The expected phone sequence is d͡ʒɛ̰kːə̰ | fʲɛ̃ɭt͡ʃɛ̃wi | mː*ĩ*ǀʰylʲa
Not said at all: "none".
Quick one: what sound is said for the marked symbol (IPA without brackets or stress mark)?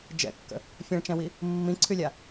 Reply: ĩ